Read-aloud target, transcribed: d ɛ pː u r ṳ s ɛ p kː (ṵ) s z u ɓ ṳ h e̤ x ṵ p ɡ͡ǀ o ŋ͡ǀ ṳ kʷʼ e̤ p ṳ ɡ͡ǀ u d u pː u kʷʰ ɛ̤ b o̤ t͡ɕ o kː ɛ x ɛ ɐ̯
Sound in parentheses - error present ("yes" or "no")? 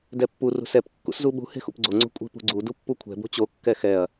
no